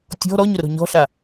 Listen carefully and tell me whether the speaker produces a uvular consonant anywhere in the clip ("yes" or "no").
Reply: no